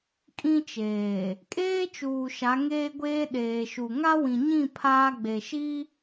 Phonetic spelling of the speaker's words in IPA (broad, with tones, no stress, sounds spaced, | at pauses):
kʼ ĩ˦ t͡ʃ eː˨ | kʼ eː˦ t͡ʃ uː˨ ʃ a˨˦ ŋ eː˦ ɡʷ eː˦ ɗ eː˨ ʃ u˨ ŋ a˦ w ĩ˨ ɲ ĩ˦˨ pʰ aː˦ ɡ͡b e˨ ʃ i˦